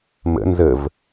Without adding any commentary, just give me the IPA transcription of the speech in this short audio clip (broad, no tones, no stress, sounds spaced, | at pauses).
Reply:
m ə̰ n z ə v